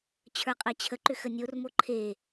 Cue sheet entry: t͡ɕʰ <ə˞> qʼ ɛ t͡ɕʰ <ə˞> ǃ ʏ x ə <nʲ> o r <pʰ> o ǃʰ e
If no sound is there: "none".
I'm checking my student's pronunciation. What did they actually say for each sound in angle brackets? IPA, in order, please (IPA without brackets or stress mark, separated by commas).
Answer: ə˞, ə, nʲ, m